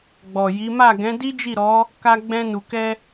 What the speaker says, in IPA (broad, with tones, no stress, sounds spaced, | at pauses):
ɡ͡b ɔ˨ j i˨˦ m a˦˨ ɡ ɛ̃˨˦ d i˦ d͡ʒ i˦˨ ɾ ɔ˨˦ | k a˧ ɡ͡b ɛ̃˧ n u˨ k ɛ˧